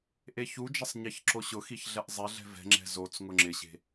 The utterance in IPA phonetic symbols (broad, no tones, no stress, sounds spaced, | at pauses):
ʔ e ç u d͡ʒ ɛ sˤ ɲ ɛ ç ǁ o ɕ ʊ x i ç ɮ ɛ ʔ zˤ e ɮ ɛ̤ v ɛ̤ ŋ͡ǁ ɛ̤ z o t͡s ŋ ʊ ŋ͡ǁ ɪ ɕ e̤